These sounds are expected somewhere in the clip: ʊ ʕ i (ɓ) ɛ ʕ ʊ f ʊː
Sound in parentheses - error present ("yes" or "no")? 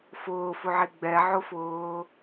yes